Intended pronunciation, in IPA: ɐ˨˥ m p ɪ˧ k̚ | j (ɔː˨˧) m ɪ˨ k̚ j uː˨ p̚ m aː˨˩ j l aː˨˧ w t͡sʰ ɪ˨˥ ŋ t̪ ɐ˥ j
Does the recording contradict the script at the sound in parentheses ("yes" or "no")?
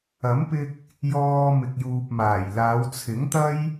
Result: yes